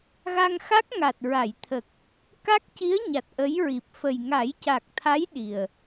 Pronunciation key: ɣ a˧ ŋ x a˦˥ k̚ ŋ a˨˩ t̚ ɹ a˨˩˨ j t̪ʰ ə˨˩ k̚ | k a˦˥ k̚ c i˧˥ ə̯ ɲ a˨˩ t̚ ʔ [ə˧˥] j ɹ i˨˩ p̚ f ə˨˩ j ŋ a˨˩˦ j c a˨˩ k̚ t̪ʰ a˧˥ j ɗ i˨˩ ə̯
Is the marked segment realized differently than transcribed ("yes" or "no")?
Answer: no